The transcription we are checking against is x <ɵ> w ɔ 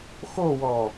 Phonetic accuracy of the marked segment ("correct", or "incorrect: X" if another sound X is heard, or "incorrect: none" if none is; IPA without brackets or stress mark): incorrect: o